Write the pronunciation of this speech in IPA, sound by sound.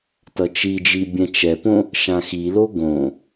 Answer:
tʌt͡ʃid͡ʒi bʲɛ̃t͡ʃɛpõ | ʃãxilo ɡõ

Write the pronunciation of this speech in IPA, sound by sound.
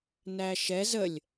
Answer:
næʃɛz əlʲ

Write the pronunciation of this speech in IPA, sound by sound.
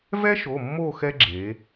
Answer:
vɛ˦ʃo˩˧˩ mːo˥˨xɛ˦ ɡ͡ǁe˩˧

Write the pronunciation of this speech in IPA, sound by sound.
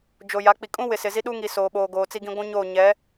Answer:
d͡ʒo˨ja˨˦ k͡pi˨kʼũ˦wɪ˨sɪ˨ zi˦ɗu˦ŋi˨ soː˨ɓoː˨ɡoː˨ t͡si˦ɡĩ˦ ɡʷũ˦ ɲo˦˨ɲɛ˨˦

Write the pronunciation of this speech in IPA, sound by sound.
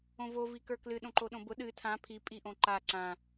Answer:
õvo vikə˞klɨ ɗõǃoɗõbʊ ɗɨ tʰã pʰi pʼiʔõǃa ǀã

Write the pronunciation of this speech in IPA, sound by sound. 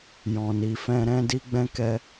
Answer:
jɔ̃˨ni˨fɛ̃˧ɾɛ̃˦ di˦ɡ͡bɛ̃˦kɛ˦

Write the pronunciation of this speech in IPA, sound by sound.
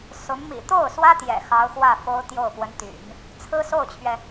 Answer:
sʊ˧˥ŋ mḭ˨˩t̪o˥˩ʊ̯swä˥ t̪jɛ̰˨˩xɑ˧˥ʊ̯xwä˥˩ fo˥ʊ̯t̪jo˥˩ʊ̯ pwə˧˥nt̪y̰˨˩˦n | t͡sʰɹ̩˥ so˥˩ʊ̯t͡ɕʰɥɛ˩

